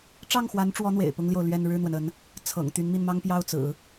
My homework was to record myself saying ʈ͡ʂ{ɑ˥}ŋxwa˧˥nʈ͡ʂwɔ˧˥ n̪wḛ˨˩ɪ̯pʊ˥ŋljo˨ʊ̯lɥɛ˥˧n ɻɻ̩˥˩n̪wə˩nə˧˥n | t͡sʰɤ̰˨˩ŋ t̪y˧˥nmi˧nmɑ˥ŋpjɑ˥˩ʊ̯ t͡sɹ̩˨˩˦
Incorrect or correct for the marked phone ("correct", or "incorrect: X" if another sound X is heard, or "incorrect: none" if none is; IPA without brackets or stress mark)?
incorrect: ɑ˥˩